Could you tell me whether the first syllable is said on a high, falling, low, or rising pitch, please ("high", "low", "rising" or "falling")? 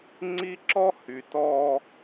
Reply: high